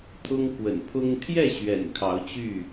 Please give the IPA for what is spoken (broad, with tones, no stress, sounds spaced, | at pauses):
t̪ʰ ʊ˦ ŋ k w ə̰˨˩ n pʰ ʊ˦ ŋ t̪ʰ j ɛ˥˨ ɕ ɥ ɛ̰˨˩ n kʰ ɑ˨˦ ʊ̯ t͡ɕ y˥˨